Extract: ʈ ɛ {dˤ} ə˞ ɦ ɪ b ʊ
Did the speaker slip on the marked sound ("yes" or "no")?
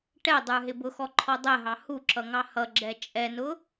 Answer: no